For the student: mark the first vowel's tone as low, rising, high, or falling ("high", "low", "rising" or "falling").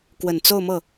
low